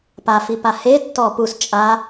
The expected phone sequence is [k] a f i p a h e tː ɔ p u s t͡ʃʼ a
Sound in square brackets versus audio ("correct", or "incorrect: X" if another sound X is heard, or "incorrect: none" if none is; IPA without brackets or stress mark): incorrect: p